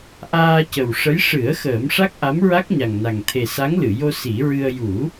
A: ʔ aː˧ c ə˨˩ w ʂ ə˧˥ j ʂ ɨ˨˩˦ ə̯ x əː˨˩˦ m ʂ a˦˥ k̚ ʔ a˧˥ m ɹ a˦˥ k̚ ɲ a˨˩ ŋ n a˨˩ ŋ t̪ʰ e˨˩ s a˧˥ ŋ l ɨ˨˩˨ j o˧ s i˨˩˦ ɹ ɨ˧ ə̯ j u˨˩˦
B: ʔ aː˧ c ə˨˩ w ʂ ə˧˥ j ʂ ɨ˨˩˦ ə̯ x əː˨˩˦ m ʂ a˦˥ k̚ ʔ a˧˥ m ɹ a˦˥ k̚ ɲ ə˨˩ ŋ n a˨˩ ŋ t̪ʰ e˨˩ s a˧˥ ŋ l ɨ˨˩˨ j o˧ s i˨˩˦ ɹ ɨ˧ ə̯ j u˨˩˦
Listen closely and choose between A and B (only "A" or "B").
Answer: A